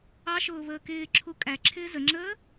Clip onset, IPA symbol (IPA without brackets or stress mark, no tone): ɑ